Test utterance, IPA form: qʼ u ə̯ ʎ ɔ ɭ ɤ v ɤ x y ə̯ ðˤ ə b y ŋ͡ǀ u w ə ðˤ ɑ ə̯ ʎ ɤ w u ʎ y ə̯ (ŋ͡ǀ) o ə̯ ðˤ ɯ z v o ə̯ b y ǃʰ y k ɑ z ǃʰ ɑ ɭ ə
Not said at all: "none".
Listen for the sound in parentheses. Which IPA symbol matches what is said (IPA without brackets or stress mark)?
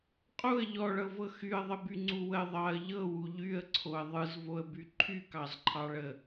ǀʰ